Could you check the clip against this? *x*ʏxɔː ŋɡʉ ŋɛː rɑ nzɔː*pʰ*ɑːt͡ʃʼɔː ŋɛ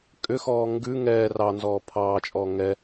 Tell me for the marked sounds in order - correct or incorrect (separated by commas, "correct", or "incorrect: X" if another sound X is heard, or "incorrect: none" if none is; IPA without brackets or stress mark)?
incorrect: kʼ, correct